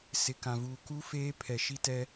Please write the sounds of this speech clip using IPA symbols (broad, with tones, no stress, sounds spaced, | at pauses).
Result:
s ɪ˨ k ã˨ v uː˨ k u˦ f eː˦ pʰ ɛ˨ ʃ i˦ t ɛ˦